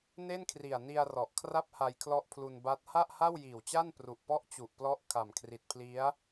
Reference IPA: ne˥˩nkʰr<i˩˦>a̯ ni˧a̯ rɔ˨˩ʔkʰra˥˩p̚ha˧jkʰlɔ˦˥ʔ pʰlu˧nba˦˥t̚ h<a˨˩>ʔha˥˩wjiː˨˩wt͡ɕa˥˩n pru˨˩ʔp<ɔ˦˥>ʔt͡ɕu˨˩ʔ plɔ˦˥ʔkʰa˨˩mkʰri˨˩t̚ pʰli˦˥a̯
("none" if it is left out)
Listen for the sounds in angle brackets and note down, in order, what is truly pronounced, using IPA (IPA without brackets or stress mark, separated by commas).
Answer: i˨˩, a˥˩, ɔ˦˥